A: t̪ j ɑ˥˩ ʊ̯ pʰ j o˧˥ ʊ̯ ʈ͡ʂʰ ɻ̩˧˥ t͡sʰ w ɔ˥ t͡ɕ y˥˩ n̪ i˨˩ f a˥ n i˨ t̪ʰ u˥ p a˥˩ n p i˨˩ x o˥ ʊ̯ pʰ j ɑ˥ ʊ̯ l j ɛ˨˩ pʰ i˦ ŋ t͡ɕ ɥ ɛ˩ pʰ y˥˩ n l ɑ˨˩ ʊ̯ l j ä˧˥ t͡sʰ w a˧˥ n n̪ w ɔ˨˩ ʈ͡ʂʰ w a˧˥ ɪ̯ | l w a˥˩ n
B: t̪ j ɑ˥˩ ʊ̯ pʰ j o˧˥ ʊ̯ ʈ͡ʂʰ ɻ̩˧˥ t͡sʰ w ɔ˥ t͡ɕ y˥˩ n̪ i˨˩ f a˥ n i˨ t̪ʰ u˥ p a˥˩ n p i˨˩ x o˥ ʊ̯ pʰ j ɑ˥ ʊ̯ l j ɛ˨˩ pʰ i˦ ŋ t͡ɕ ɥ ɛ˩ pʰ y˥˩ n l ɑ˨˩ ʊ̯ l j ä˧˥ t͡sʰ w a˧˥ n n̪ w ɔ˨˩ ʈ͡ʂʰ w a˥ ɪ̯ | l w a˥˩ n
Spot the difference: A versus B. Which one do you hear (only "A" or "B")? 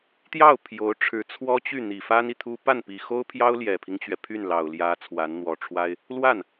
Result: B